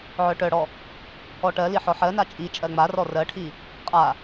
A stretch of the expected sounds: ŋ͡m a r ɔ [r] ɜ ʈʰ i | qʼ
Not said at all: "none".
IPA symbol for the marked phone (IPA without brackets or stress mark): r